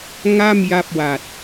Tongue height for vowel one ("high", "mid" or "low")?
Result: low